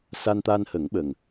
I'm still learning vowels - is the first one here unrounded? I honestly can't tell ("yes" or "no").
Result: yes